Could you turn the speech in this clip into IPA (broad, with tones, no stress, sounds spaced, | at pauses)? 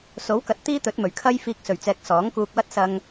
s o˨˥ w k ɐ˨˥ t̚ t̪ iː˥ t̪ ɵ˨˥ t̚ m ɵ˨˩ ɥ kʰ ɐ˥ j f iː˧ k̚ s ɵ˨˩ ɥ t͡s ɛː˨ k̚ s ɔː˨˥ ŋ k uː˧ k̚ w ɐ˥ t̚ s ɐ˧ ŋ